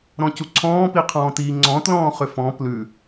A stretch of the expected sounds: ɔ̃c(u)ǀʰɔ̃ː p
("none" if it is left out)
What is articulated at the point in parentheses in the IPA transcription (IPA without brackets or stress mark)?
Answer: u